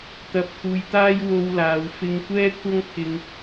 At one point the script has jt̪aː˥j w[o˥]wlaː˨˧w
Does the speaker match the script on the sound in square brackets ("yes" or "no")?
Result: yes